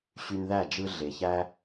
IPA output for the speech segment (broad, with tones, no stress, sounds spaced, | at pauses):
ɕ y˧ n ð æ˦˨ d͡ʒ ɯ˧ ɮ e˨ ç æ˦